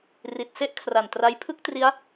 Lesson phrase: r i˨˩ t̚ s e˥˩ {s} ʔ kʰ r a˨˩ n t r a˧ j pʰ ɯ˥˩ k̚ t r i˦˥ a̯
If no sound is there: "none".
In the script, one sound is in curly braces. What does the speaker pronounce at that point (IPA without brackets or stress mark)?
none